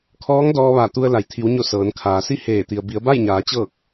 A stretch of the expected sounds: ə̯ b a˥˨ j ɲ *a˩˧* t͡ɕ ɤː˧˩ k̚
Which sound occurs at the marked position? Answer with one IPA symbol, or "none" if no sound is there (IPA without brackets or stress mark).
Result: aː˩˧